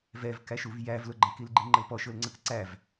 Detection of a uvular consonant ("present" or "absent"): absent